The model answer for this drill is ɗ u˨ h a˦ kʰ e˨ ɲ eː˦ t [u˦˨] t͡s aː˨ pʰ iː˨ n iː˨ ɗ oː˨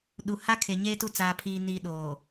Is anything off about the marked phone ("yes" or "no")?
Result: no